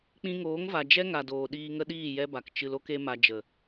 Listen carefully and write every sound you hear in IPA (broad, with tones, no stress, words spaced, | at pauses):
k͡pĩ˧ŋoː˨˦ŋva˨ d͡ʒɛ˦ŋa˨ doː˨ ɗiː˧ŋə˦ɗiː˦˨ jɛ˦ba˨k t͡ʃɨ˧lo˦k e˦ma˧ d͡ʒə˨